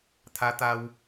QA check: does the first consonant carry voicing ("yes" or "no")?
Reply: no